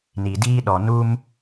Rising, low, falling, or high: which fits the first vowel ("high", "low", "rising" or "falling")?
low